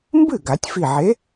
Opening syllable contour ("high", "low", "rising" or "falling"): falling